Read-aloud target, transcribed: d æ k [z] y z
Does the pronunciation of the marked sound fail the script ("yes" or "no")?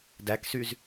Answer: yes